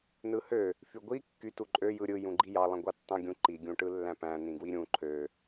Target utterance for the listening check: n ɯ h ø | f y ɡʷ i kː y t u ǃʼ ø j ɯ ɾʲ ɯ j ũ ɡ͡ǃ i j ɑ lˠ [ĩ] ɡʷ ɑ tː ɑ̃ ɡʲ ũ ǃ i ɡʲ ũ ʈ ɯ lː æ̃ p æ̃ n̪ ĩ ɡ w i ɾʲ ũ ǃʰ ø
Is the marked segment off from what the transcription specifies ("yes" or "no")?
no